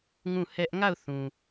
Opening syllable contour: falling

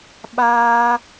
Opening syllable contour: high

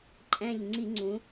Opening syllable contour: falling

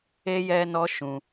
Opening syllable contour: high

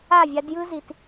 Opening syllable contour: falling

